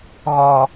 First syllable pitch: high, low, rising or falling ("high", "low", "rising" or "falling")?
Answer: low